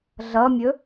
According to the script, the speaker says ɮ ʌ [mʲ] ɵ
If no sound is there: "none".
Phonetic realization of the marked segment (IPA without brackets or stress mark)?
mʲ